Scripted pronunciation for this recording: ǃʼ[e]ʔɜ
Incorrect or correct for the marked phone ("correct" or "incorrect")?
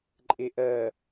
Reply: correct